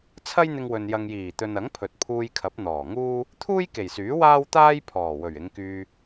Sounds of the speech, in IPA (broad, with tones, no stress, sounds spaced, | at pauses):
t͡sʰ ɐ˥ j n̪ ɪ˧ ŋ w ɵ˨ n j ɐ˨ ŋ j iː˨˩ t̪ ɵ˨ n ɐ˨˥ ŋ pʰ ɵ˨ t̚ pʰ uː˧ j kʰ ɐ˨˥ p̚ n̪ ɔː˨˩ ŋ uː˥ | t̪ʰ uː˥ j k e˨˩ j s yː˨˥ w aː˥ w t̪ aː˥ j pʰ ɔː˨˩ w ɵ˨˩ ɥ ɪ˨˧ ŋ k yː˧